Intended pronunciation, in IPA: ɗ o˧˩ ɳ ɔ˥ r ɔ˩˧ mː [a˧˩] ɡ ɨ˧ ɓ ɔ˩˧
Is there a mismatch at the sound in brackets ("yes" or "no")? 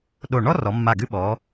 no